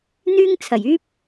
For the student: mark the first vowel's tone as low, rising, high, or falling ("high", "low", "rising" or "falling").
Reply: high